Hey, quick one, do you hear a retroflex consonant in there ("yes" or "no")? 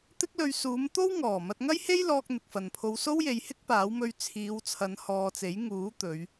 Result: no